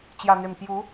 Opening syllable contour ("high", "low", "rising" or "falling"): low